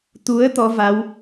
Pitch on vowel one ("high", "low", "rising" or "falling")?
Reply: rising